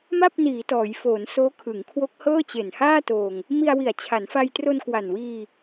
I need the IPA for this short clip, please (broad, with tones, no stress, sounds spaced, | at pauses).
m a˥˩ p̚ n iː˩˦ t ɔː˩˦ j f oː˩˦ n s oː˦˥ kʰ ɯ˩˦ ŋ kʰ w o˦˥ k̚ h ɤː˥˩ t͡ɕ e˨˩ n h aː˥˩ t oː˧ ŋ | m i˧ a̯ w i˨˩ a̯ t͡ɕʰ a˩˦ n f a˧ j t r o˧ n k w a˨˩ n w iː˧